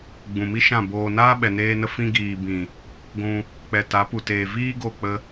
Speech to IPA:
ɡ͡b ũ˨ m i˦ ʃ ã˦˨ b oː˧ n aː˦ ɓ ɛ˨ n eː˧ n ə˧ f ĩ˧ ɡ iː˨ b ĩ˨ | ɡʷ ũ˧ | k͡p ɛ˨ t a˨˦ p u˨ t eː˨ v iː˦ ɡ o˦˨ k͡p ə˧

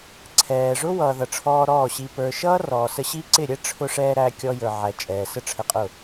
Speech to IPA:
ǀʰ ɛː˨ ʐ ʊ˦ w ʌː˨ ð ʌ˨ ʈ͡ʂʰ ɔː˧ ɾ ɔː˦˨ ɕ i˧ p ə˞˨ ʃ ʌː˦ r ɔː˨ s ə˧ ɕ i˦ ǀ ɪ˦˨ ɾʲ ɛ˦ ʈ͡ʂʰ ʊ˧ ʂ ɛː˧ ɾ æ˧ kʲ ɔ˧ j ə˞˨ ʕ æ˨ t͡ʃʼ ɛː˨ s ə˦ ʈ͡ʂʰ ə˧ qʼ ʊ˦˨

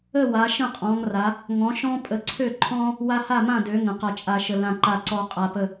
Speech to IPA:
ə˥˨ w a˨˦ ʃ ə̃˥˨ qʼ ɔ̃˨˦ ŋ r a˨˦ | ŋ ɔ̃˨˦ ʃ ɔ̃˦ pʼ ə˨˦ ǀʰ ø˥˨ ǃʰ ɔ̃˦ | w a˦ h a˥˨ m ã˥˨ d ø˨˦ ŋ ə̃˨˦ q a˦ t͡ʃʼ a˦ ʃ ə˦ l ã˥˨ ǃ a˥˨ ǀ ɔ˦ qʼ a˦ p ə˥˨

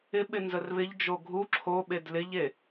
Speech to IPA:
ɪ ɓ ɪ n z ə r β ɪ ʎ d͡ʒ o ɡʱ u ǁʰ o ɓ e d l ɪ ʎ e

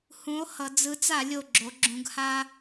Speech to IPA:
h ũ˨˥ o̯ h ʌ˩˧ d͡z ɯ˨˥ t͡s a˧˩˧ lʲ o˨˩ ɡ͡ǁ o˩˧ ɡ͡ǁ ũ˩˧ ɡ h a˦

